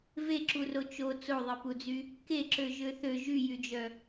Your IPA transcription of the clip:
v e ǁ u r o t͡ʃ o t͡s o ðˤ e p u d͡z y | k e ǁ ø ʒ ø θ ø ʒ y j y d͡ʒ œ

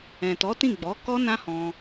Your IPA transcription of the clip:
ɛ̃˨ t ɔ˨˦ t ĩ˦˨ ɡ͡b ɔ˨˦ k ɔ˦ n ã˦ h ɔ̃˧

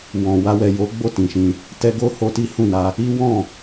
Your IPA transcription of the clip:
w ɔ̃˨ w a˧ w ɛ˨ j o˨˦ ɡ͡b o˦˨ t ĩ˨ ʃ ĩ˧ | t ɛ˧ ɡ o˦ h o˧ t i˦ h ũ˦˨ n a˧ | i˦ w ɔ̃˦˨

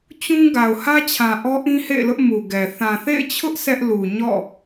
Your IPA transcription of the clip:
t͡ɕ ũ˦ ɡ a˨ ʊ̯ h ä˦ t͡ɕʰ ã˨ ʔ ɔ˦ ʔ ĩ˦ h ḛ˦˨ ɪ̯ l ʊ˦ ʔ m u˨ ɡ ɛ˨ θ ã˨ θ ḛ˦˨ ɪ̯ t͡ɕʰ ʊ˦ ʔ s ɛ˦ ʔ l u˨ ɲ ɔ̰˦˨

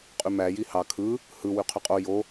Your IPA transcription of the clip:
qʼ y m æ j i h ɑ kʰ ɯ | h ɯ w y qʰ y qʼ o j o

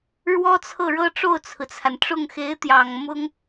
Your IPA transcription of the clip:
ɻ w ɔ˥ t͡sʰ ɤ˥˩ ɻ ɤ˥ ʈ͡ʂ o˥˩ ʊ̯ t͡sʰ ɹ̩˩ t͡sʰ a˩ n ʈ͡ʂ ʊ˥˩ ŋ x e˧˥ ɪ̯ t̪ j ɑ˨˩ ŋ m ʊ˥ ŋ

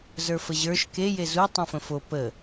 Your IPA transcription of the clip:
z ə˞ f ə ʑ ə˞ ʃ k e j e z u tˤ ũ f ə̃ f o p ə

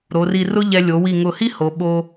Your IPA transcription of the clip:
ɾ o˩˧ r i˧˩ r ʊ˥ ʎ ɛ˧ lʲ o˩˧ w i˧˩ ŋ ʊ˧˩ h i˥ h o˩˧ ɓ o˧

